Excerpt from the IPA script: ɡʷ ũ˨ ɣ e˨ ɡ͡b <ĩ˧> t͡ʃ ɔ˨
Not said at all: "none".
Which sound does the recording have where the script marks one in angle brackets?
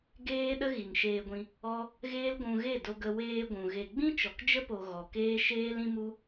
ĩ˦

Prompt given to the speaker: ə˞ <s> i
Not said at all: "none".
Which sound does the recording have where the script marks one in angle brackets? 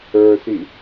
s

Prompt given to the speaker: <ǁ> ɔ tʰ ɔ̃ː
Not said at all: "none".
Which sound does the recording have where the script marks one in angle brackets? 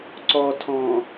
ǀ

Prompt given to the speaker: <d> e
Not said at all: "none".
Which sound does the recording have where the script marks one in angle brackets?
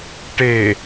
ʈ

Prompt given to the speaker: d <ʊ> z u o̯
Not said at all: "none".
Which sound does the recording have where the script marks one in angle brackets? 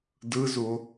ɯ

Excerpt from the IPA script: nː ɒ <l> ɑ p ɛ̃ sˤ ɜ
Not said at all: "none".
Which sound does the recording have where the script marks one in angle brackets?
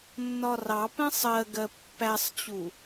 r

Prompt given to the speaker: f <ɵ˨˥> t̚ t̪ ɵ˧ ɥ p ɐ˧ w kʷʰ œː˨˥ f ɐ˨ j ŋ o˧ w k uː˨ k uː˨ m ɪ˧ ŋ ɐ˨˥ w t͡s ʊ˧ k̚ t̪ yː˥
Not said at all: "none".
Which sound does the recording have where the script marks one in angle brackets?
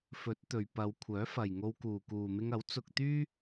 ɵ˨˥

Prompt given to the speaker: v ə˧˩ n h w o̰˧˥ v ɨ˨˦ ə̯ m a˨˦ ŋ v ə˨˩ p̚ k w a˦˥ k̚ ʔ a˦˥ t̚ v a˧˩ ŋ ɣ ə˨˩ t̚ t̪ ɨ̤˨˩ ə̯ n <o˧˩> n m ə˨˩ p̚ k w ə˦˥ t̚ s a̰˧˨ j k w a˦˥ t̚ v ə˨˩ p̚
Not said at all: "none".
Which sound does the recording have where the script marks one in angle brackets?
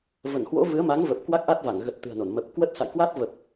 o˧˩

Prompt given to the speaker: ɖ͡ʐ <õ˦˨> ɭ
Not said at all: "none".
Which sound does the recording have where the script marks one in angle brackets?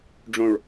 õ˨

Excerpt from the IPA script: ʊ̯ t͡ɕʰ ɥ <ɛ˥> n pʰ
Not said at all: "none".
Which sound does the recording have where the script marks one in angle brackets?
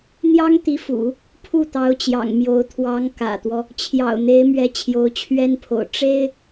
ɛ˥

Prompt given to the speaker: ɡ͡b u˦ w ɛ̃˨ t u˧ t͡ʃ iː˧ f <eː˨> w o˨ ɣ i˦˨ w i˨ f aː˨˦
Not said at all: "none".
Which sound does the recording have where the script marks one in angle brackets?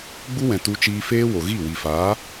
eː˦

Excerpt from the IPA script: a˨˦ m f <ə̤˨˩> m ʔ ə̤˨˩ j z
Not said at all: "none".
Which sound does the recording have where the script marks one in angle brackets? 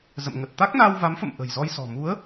ə̰˧˨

